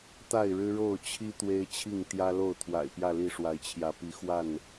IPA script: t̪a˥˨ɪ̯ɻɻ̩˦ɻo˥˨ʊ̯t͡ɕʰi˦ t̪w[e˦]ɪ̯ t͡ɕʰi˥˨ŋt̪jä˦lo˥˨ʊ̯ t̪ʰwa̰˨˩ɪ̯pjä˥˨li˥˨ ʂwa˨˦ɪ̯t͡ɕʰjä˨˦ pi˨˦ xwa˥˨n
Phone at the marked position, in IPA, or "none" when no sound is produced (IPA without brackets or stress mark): e˦